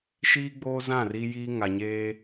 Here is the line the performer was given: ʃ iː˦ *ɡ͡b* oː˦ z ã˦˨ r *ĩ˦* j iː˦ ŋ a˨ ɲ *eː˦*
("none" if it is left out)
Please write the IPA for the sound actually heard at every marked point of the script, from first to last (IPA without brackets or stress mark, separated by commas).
ɡ͡b, i˦, eː˦